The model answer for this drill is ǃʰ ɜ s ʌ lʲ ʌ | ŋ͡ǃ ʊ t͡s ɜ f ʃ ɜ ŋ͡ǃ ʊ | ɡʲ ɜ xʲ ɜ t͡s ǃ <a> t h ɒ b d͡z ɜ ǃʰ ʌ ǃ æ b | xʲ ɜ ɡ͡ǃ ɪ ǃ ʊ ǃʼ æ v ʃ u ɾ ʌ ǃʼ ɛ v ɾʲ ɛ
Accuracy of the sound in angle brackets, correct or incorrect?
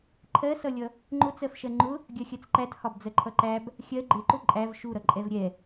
incorrect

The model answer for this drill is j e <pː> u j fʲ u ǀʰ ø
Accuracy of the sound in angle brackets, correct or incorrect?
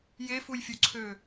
incorrect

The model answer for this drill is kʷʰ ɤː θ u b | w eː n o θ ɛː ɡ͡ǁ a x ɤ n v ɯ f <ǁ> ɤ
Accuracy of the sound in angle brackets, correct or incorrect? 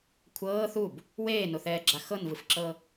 correct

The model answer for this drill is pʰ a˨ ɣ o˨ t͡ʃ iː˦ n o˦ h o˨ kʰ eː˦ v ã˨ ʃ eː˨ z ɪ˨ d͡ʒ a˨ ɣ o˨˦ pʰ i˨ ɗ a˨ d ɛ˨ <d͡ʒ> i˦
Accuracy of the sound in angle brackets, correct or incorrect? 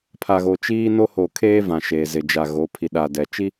incorrect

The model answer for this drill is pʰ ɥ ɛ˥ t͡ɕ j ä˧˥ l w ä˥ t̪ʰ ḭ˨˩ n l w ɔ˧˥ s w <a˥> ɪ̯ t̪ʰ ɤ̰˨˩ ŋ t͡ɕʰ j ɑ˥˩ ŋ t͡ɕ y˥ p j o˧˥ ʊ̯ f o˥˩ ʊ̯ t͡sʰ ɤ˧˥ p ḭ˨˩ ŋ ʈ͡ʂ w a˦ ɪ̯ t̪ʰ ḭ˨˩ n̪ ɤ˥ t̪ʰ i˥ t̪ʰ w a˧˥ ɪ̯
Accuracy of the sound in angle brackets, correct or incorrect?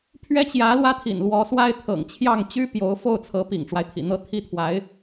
correct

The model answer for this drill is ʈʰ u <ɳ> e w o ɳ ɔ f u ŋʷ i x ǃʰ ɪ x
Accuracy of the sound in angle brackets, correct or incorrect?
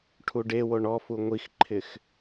incorrect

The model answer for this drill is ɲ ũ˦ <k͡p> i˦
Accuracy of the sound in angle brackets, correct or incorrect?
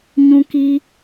incorrect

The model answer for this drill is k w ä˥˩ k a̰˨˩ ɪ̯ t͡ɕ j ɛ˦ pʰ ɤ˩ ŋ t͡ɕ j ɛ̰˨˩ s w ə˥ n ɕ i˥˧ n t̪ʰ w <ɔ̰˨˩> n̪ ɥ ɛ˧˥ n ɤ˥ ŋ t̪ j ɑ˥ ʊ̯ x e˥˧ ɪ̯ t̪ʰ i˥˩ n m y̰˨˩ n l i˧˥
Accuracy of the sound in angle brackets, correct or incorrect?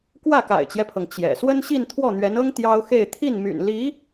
incorrect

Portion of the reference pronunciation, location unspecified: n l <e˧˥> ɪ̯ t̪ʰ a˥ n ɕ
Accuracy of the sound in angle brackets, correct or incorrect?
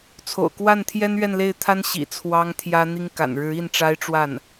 incorrect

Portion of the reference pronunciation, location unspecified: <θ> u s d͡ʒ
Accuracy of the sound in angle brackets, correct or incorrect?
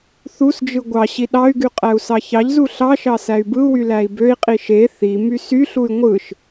correct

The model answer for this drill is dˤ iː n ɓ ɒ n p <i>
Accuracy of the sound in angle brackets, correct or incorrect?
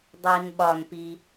correct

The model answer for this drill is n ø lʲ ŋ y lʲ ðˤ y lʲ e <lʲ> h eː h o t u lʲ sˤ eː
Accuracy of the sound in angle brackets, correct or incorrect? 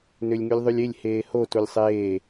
correct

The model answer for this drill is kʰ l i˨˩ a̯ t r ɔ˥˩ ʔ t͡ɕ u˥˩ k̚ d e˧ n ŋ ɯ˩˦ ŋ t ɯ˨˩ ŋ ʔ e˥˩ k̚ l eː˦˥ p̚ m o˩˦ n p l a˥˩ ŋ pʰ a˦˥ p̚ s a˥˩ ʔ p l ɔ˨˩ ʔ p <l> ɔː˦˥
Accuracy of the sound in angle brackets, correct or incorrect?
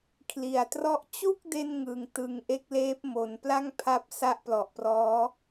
incorrect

